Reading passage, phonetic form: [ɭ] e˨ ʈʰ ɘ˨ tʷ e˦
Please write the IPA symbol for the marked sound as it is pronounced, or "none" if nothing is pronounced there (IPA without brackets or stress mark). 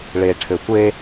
ɭ